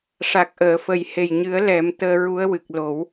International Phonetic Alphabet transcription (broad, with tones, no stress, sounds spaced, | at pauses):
ʂ a˨˩ k̚ ʔ əː˨˩˨ f ə˨˩ j h e˨˩ j ɲ ɨ˨˩˦ ə̯ l ɛ˨˩˦ m t̪ əː˧ ɹ u˧˥ ə̯ w ɨ˨˩ k̚ l o˨˩˦ w